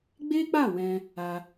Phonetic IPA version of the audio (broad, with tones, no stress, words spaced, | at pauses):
ɡ͡be˦k͡pa˦˨ wɛ̃˧ | a˧